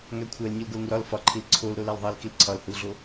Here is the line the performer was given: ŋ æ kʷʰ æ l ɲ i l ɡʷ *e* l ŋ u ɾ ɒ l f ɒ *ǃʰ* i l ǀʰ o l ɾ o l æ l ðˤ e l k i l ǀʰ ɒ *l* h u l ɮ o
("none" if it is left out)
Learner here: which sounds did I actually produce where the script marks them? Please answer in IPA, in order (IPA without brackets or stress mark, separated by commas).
e, ǃʰ, l